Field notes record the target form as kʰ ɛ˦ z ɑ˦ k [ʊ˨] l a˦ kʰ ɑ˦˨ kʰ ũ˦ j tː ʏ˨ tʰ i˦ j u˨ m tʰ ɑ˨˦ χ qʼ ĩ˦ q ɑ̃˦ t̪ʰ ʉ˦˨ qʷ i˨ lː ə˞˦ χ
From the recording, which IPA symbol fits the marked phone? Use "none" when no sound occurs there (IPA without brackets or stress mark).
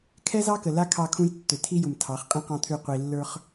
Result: ə˨